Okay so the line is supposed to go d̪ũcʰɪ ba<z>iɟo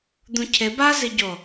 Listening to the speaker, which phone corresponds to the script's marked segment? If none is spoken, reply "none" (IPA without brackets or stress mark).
z